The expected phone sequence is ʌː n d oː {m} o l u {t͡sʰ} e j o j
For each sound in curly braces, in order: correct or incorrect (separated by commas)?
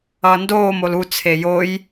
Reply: correct, correct